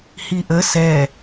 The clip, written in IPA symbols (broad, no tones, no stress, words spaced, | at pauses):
hiʔə sɛ